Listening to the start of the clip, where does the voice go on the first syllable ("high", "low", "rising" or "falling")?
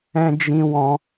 high